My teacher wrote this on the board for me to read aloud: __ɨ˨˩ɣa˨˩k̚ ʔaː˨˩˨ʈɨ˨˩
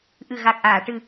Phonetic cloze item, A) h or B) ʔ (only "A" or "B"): B